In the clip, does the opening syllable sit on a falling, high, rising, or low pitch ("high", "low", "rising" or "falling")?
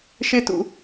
high